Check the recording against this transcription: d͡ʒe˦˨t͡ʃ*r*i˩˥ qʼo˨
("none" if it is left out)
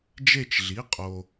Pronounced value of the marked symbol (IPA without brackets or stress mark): ɮ